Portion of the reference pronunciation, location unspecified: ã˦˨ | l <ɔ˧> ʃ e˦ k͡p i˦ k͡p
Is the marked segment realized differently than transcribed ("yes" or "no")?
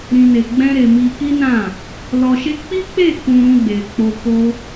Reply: no